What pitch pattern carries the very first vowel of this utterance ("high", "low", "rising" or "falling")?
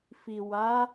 low